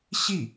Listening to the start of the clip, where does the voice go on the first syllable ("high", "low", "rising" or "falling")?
falling